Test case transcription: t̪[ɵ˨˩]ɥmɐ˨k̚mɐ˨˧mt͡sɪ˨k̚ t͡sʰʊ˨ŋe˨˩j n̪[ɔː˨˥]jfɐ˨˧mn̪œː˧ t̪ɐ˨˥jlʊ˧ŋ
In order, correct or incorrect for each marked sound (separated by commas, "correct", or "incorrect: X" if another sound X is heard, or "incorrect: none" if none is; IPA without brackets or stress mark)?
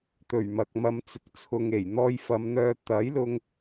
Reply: correct, incorrect: ɔː˧